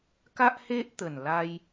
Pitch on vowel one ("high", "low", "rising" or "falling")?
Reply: high